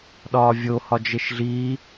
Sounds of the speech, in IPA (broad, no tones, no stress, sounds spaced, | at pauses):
ɗ ɒː vʲ o h ɒ d͡ʒ e ʃ ɮ iː